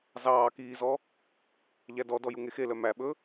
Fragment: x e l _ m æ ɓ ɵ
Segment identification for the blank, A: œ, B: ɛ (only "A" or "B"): A